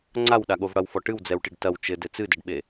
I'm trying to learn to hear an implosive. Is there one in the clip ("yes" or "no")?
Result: yes